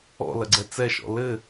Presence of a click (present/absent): present